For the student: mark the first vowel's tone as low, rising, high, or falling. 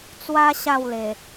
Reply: high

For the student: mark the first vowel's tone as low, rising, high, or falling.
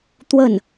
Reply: falling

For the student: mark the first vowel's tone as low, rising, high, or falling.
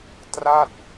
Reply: falling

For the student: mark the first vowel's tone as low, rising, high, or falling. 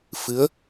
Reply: rising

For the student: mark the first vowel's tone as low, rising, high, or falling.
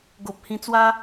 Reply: low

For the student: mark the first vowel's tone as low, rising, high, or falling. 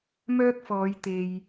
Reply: high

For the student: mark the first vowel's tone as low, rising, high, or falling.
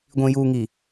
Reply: low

